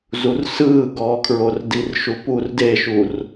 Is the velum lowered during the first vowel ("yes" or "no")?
no